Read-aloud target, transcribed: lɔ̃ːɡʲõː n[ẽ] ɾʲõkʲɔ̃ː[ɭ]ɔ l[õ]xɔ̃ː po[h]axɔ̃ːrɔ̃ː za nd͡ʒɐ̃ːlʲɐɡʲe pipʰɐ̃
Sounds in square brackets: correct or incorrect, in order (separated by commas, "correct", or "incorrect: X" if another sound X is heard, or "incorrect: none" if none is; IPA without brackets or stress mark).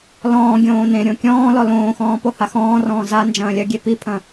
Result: correct, incorrect: l, incorrect: õː, correct